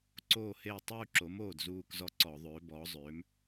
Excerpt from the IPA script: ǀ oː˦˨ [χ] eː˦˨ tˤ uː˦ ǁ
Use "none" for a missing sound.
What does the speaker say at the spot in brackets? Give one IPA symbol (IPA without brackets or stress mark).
h